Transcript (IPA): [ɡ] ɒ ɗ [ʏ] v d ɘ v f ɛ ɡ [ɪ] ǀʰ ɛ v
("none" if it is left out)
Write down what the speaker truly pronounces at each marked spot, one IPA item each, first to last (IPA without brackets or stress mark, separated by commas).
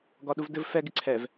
ɡ, u, ɪ